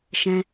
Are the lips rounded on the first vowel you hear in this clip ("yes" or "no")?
no